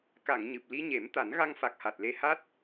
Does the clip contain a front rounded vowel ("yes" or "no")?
no